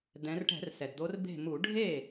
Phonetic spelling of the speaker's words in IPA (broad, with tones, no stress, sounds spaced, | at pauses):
d̪ ɛ̃˨˦ r ʈ ɛ̤˧˩˧ r s ɛ˩ d d̪ o˨˦ r b e̤˥˩ m u˧˩˧ ɖʱ e˥˩